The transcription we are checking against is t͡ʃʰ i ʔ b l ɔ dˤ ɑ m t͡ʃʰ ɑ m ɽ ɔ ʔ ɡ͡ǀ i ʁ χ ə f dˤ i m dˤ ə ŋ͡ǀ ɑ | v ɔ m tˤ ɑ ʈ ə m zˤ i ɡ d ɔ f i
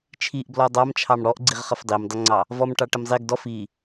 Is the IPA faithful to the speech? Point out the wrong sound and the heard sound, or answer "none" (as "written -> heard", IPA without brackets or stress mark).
tˤ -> ʈ